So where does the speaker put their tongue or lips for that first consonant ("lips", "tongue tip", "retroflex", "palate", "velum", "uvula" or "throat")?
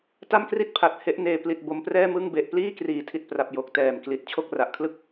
tongue tip